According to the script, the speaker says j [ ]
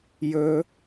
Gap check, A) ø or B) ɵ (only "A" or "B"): B